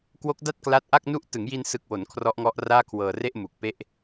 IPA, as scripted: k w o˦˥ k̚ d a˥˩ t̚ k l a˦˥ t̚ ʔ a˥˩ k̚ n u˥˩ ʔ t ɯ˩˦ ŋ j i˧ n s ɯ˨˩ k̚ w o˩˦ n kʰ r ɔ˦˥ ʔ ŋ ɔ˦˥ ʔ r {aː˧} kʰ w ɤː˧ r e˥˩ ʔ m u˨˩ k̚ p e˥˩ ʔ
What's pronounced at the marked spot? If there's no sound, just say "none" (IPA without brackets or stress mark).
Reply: aː˥˩